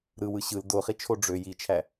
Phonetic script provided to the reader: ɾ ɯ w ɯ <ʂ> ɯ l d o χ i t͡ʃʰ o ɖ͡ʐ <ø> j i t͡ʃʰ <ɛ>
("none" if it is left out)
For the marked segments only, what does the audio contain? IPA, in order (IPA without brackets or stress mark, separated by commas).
ɕ, ø, æ